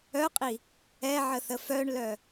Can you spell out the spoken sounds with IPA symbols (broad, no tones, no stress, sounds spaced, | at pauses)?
œ qʼ i | ɛ ʕ ə θ ə f œ ɳ l œ